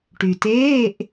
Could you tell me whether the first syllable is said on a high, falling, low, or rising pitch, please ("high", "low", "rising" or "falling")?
low